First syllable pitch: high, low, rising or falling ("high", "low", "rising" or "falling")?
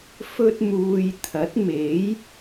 high